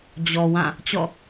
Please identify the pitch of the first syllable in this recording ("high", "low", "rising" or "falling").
low